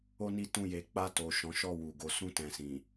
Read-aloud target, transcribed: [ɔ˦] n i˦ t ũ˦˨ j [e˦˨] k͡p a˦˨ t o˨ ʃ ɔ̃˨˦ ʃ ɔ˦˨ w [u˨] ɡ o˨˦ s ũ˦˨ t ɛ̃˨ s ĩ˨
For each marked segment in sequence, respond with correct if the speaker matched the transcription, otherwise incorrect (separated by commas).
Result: incorrect, incorrect, correct